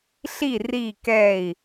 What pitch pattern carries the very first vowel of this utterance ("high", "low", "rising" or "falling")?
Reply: falling